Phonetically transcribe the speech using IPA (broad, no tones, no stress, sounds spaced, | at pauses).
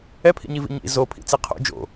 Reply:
ɛ pʰ ḭ ɲ i v ḭ ɲ ḭ z o pʰ ḭ t͡s i qʰ o̰ d͡ʒ o̰